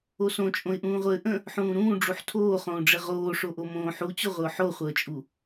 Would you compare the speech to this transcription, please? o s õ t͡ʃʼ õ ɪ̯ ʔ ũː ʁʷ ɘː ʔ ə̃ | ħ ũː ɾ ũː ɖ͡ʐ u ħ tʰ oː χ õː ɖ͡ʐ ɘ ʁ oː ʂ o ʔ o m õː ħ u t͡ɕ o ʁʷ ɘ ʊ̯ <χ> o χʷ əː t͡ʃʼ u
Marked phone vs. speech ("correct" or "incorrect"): incorrect